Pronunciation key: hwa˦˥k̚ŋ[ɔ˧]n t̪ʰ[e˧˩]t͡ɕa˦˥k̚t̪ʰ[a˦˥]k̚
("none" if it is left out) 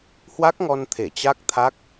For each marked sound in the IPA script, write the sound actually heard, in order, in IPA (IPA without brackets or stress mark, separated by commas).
ɔ˧, e˧˩, a˦˥